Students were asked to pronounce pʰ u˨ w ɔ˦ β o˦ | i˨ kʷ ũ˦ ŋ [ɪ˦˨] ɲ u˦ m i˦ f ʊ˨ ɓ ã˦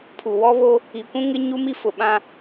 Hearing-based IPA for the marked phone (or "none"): ɪ˦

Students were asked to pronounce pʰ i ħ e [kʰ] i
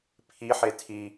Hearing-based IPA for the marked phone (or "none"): tʰ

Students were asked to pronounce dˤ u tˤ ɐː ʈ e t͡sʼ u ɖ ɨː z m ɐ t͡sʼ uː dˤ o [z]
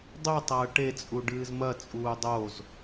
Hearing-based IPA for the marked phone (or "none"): z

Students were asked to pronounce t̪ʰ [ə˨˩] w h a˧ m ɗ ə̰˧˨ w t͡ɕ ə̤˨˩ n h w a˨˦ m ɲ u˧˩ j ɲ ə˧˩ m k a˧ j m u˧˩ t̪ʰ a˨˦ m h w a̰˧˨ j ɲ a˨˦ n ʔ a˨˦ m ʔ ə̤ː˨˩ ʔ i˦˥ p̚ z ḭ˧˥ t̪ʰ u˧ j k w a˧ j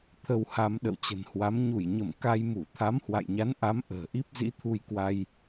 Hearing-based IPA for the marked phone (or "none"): ə˧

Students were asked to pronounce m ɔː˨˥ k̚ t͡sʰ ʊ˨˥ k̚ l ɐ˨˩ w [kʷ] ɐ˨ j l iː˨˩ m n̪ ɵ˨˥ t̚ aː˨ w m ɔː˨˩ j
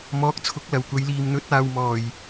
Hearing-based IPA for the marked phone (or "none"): kʷ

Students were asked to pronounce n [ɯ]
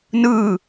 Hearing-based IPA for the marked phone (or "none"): ɯ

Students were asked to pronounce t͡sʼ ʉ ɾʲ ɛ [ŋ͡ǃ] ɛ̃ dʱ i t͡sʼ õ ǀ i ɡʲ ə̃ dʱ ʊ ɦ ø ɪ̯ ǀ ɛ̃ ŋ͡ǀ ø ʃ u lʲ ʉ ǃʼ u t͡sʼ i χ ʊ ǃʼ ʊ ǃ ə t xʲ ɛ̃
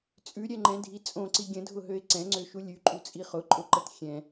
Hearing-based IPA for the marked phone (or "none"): ŋ͡ǃ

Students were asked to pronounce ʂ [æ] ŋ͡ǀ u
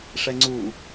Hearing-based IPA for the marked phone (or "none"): ɛ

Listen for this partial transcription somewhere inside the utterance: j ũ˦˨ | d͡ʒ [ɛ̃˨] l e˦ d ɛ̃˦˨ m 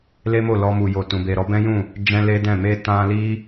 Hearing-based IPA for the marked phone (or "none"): ɛ̃˧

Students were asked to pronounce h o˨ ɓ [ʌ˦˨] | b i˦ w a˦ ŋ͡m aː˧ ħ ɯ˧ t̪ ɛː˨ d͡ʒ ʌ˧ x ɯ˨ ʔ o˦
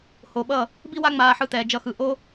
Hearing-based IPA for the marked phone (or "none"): ʌ˦˨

